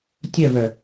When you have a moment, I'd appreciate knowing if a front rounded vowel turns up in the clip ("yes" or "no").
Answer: yes